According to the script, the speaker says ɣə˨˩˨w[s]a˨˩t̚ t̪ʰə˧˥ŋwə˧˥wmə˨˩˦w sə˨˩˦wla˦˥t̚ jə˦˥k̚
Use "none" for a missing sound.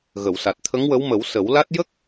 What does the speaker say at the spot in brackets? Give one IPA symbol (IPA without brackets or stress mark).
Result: s